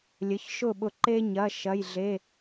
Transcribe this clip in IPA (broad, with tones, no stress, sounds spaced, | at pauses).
lʲ ə˩˧˩ ç ʃ ʊ˥˩ ɓ ʊ˧˩ ǃ e˦ ɲ ɐ˩˧˩ ʃ ɐ˩˧˩ j ɮ e˩˧˩